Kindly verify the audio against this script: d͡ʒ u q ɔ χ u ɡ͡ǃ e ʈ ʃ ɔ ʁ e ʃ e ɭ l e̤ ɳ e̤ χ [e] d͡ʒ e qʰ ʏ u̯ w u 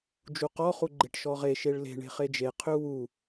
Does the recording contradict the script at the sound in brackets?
no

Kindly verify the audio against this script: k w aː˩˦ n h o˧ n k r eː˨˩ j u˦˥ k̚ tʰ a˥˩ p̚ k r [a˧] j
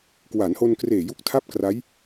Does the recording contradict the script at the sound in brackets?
yes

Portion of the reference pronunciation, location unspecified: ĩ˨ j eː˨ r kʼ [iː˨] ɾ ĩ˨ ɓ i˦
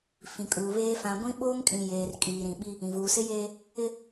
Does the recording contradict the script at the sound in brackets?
no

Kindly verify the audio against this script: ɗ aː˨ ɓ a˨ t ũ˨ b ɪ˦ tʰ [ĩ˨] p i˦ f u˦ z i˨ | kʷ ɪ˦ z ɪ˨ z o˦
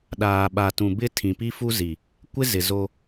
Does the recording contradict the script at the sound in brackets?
no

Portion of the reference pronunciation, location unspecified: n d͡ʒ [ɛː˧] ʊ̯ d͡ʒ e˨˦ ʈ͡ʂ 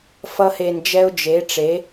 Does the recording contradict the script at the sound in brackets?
yes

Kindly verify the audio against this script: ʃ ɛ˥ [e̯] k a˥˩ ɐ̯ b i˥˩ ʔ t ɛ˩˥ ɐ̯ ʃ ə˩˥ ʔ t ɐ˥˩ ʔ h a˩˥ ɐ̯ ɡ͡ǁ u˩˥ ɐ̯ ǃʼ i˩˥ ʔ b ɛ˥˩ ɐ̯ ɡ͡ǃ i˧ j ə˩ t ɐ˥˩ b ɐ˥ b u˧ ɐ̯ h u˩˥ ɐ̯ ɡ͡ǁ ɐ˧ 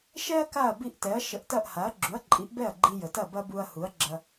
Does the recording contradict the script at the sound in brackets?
yes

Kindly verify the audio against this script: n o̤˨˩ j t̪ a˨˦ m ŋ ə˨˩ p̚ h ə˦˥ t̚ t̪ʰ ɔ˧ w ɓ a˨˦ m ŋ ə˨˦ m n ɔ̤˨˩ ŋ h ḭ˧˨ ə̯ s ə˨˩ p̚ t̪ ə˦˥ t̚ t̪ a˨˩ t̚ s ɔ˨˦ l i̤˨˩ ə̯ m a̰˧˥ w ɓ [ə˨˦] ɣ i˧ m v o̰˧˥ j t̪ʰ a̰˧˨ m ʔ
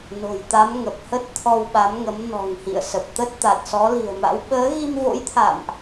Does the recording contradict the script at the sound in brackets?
yes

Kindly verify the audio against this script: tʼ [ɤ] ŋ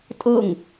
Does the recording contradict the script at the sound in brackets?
no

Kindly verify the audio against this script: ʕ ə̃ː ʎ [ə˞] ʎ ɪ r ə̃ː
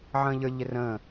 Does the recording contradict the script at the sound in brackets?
no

